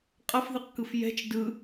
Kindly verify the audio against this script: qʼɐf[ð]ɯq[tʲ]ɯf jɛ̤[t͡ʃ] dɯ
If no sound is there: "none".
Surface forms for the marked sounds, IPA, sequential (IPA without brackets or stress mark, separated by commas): ð, k, t͡ʃ